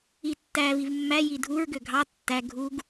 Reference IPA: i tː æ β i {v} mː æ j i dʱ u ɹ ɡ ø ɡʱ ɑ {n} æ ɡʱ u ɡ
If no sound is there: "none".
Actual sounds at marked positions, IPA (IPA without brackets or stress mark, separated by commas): v, tː